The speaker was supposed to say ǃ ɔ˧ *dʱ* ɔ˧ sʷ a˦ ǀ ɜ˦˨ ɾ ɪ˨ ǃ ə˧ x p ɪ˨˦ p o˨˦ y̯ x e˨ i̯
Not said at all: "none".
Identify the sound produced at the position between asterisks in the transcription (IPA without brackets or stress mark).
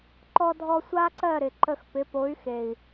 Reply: dʱ